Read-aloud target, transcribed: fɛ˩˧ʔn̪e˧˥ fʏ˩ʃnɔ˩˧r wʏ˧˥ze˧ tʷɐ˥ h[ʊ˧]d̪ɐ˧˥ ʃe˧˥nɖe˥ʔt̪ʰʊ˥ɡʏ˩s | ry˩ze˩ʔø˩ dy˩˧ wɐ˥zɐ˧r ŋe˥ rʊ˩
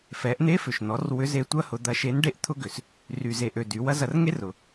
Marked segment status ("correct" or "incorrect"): correct